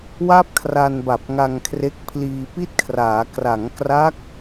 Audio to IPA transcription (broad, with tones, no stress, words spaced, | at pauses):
wa˥˩p̚kʰra˧nba˨˩p̚ ŋa˧ŋkʰre˦˥k̚ pʰliː˧pi˥˩t̚kʰraː˩˦ kra˩˦ŋkra˦˥k̚